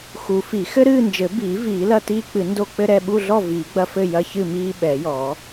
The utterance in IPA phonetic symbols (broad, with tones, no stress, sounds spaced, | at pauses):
x u˨˩˦ f i˨˩˦ x ɘ˦ ɾ ɨː˥˨ n d͡ʒ ɘ˨˩˦ b iː˨˩˦ v iː˨˩˦ l ɐ˥˨ t iː˦ k͡p ɨ˨˩˦ n d o˦ k͡p ɘ˦ ɾ ɛ˥˨ ɓ u˥˨ ɮ ɔ˥˨ v iː˨˩˦ ɡ͡b ɐ˦ f ɘ˥˨ j ɐ˦ ç ɨ˥˨ m iː˦ ɓ ɛ˨˩˦ j ɔː˨˩˦